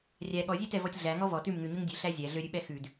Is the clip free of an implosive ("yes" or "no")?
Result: no